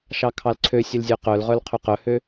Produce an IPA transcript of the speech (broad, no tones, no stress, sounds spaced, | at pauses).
ʃ ɑ kʰ ɑ l ǀʰ ø sʲ ʉ l zʲ ø q œ l ʁ œ l qʰ ø q œ h ø